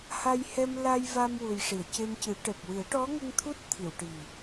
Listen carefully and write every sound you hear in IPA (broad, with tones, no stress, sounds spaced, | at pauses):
h a˧ j h ɛ˧ m l a˧ j v a˧ m w u˨˩ j ʂ i˨˩˨ ə̯ c e˧ m c ɨ˨˩˦ ʈ ɛ˨˩ p̚ w ɨ˨˩˦ ə̯ ʈ ɔ˧˥ ŋ ə˧ ŋ t̪ʰ u˦˥ t̚ t̪ʰ i˨˩˨ w ʈ i˨˩